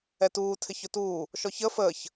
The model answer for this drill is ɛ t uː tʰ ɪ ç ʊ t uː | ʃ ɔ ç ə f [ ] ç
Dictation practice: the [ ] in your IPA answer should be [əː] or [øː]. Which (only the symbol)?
əː